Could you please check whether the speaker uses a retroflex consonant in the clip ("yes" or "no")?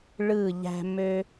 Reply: yes